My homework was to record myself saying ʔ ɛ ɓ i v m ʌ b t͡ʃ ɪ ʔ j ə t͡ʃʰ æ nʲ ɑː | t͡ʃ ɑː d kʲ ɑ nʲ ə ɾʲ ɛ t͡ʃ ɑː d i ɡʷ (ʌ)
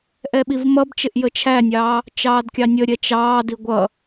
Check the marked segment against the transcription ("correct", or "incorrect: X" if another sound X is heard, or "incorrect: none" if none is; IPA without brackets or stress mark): correct